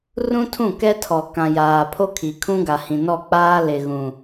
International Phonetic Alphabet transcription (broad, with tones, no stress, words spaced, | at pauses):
rũ˦tʰũ˦˨ kɛ˦tʰɔ˨ kã˨jaː˨pʰo˦kʰi˨ kʰũ˦ɡa˨hĩ˨ nɔ˦˨k͡paː˦lɪ˨ ɣũ˨